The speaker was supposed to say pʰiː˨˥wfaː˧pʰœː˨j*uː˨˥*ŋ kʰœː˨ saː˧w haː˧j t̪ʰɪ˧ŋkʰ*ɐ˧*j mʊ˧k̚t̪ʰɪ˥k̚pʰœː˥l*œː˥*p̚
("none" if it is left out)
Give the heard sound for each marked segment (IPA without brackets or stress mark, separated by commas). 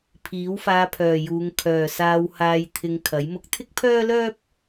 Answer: uː˨˧, ɐ˨˥, œː˥